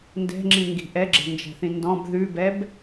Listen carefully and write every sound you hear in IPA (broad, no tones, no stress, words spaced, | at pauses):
ndɛ̤ŋ͡ǁĩŋɡi̤ ʔɛɡ͡ǁɛ̤nd͡ʒɛ̤θĩ ndɔ̃b ðʉbɛb